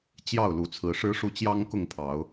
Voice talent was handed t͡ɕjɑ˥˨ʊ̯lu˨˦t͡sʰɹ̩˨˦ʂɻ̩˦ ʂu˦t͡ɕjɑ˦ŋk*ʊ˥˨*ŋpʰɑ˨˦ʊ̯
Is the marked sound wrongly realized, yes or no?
no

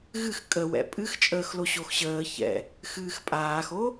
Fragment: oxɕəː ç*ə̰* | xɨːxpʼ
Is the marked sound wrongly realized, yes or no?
yes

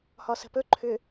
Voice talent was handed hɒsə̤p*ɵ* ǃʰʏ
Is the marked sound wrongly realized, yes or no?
no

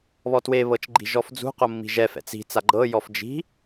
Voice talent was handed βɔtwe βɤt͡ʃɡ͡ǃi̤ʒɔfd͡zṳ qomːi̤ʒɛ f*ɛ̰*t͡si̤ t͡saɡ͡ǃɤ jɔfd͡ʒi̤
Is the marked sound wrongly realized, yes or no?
no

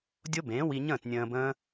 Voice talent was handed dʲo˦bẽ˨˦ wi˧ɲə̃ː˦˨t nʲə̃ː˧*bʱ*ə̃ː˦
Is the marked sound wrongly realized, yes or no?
yes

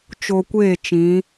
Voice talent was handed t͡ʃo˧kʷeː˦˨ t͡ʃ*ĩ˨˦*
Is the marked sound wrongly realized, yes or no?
no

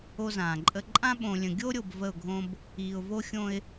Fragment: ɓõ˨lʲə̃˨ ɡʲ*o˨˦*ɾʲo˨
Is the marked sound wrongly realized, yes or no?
yes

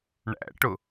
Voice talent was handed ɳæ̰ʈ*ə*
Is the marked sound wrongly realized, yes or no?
yes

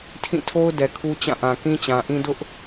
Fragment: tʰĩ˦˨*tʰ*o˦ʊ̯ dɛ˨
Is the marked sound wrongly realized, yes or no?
no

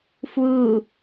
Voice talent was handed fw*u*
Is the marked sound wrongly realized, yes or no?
no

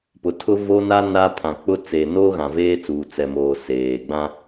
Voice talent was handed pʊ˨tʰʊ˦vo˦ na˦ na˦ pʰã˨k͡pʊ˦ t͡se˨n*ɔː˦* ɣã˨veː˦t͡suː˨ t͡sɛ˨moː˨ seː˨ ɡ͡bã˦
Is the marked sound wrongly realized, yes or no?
yes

